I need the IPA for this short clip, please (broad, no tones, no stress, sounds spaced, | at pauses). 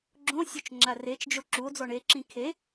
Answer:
ɡ͡ǁ õ sʲ o t͡ʃ ŋ͡ǁ a r e t͡ʃ d͡ʒ o ǁ u o̯ d͡z ɔ ɳ e ǁ ĩ kʰ e